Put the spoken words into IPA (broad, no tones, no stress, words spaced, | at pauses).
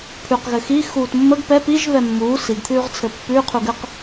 pʰʉq ɣɘxi xuːtmːəɡ pɛ piʒ βɛmːuː siɡt̪ʰʉːʁt͡sʰɘ pːʉː qʰuɡɘq